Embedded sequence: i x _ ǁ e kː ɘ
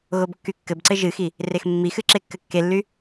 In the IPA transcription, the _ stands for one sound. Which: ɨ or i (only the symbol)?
ɨ